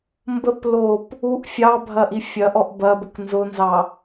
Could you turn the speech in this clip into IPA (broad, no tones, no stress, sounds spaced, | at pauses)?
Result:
m b ə p l o p | u ʔ fʲ ɑ bʱ ɐ ʔ i fʲ ɐ ʔ ɔ ʔ b ɐ b ə k n z ʊ n z ɑ